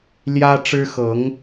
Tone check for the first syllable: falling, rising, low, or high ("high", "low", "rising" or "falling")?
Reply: high